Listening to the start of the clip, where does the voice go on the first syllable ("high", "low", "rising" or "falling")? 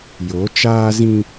rising